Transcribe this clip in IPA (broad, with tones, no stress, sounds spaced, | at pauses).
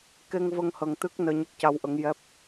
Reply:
k e˧ ŋ v ə˧ ŋ h ə˧ ŋ t̪ ɨ˦˥ k̚ n əː˧ ɲ ə˦˥ k̚ c a˧ w ʔ ə˧˥ ŋ j ɛ˦˥ p̚